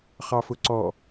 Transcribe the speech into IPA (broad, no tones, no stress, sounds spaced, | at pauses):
χ ɑ f ʊ ǀ ɔ